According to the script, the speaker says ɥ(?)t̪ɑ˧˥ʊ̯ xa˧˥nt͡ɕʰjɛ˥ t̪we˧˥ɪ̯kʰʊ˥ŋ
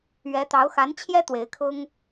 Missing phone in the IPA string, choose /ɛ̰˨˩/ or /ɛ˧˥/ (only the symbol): ɛ˧˥